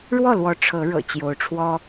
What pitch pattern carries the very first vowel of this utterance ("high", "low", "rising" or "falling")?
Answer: falling